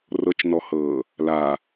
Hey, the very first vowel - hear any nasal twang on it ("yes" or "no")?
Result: no